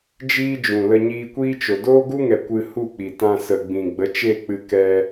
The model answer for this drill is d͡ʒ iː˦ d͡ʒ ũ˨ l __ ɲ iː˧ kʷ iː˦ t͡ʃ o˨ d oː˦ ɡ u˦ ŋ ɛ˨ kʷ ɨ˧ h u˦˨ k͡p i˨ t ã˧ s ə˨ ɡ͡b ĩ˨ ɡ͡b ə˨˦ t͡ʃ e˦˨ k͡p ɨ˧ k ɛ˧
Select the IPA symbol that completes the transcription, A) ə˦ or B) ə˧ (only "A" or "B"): B